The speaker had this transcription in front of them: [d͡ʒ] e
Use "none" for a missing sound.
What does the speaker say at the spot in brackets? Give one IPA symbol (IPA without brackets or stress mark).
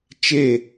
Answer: t͡ʃ